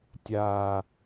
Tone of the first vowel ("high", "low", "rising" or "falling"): low